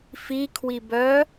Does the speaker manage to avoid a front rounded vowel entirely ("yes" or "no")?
no